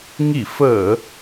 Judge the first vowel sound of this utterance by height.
high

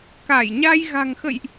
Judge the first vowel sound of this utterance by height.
low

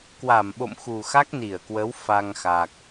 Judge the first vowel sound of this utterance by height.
low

